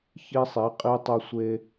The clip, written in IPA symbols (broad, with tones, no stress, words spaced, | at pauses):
çi˦sˤi˨˦qʼi˦ tˤu˦sʷe˦